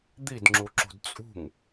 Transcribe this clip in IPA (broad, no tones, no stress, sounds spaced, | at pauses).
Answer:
d̪ i d ŋ͡ǁ u ǁ ṳ d t͡sʼ ṳ ŋ